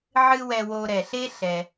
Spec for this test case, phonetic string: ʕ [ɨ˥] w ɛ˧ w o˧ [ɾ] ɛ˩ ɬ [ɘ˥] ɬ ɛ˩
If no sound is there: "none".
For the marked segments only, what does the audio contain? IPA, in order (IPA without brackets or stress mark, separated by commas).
ɨ˥, ɾ, e˥